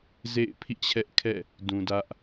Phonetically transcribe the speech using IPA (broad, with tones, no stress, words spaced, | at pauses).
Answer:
zḛ˦˨ɪ̯pʰḭ˦˨t͡ɕʰɛ˦ʔ kʰɛ̰˦˨ | dũ˨ dä˦ʔ